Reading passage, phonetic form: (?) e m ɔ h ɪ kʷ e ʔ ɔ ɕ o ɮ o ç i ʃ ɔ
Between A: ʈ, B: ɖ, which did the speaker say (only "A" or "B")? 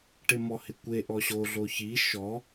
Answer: A